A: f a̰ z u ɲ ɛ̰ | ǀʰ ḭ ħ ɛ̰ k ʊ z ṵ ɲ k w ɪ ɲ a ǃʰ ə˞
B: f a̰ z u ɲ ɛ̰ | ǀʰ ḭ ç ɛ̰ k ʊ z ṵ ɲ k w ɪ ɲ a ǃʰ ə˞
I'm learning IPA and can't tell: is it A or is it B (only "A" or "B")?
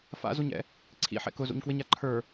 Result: A